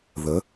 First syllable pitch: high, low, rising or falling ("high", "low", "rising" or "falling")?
rising